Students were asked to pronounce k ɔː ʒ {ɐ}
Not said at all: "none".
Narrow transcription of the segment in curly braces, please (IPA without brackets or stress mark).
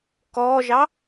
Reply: ɑ